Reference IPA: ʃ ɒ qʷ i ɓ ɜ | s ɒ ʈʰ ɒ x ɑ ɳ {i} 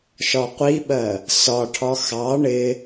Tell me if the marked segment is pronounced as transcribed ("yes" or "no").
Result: no